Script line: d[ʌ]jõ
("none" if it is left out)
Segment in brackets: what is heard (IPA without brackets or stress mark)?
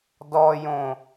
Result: ɔ